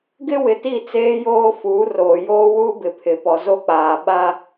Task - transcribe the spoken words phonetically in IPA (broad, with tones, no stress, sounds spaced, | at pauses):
ɡ ɪ˦ w ɪ˨ t i˦˨ t͡s eː˦ j oː˦ f uː˨˦ r oː˨ j oː˦ w uː˦ b ɪ˨ pʰ ɪ˨ p ɔ˨ z o˦ k͡p aː˨ ɓ a˦